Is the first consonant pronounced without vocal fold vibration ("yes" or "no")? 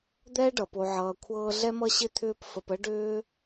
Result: no